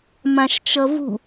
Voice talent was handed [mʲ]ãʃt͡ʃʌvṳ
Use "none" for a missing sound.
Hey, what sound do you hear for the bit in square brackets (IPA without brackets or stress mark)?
m